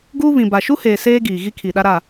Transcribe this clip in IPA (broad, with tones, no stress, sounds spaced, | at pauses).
ɡ uː˦ β ĩ˨ b a˨ ʃ u˦ h eː˨ s eː˦ ɡ iː˨ ɣ i˦ kʰ i˨ ɗ a˦ ɾ a˦˨